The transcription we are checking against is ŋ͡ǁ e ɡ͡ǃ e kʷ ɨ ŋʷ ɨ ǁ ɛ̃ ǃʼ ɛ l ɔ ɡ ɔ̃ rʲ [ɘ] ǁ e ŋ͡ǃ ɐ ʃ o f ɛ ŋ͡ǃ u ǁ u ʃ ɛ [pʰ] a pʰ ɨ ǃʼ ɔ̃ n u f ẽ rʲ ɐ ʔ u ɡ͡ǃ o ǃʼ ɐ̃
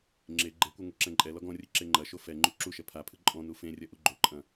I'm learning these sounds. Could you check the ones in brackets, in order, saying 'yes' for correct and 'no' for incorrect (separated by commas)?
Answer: yes, yes